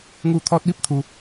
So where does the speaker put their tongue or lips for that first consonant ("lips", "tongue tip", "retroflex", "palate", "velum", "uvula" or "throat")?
velum